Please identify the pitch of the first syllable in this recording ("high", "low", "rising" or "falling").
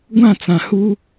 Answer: falling